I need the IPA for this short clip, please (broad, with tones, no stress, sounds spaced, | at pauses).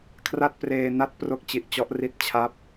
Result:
kʰ r a˥˩ t̚ p r eː˧ n a˥˩ t̚ p r o˥˩ k̚ t͡ɕ i˨˩ ʔ t͡ɕ ɔ˦˥ ʔ r i˦˥ t̚ t͡ɕʰ a˦˥ p̚